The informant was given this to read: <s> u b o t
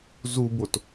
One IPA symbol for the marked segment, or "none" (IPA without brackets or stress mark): z